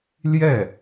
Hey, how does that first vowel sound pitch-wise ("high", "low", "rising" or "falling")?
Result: falling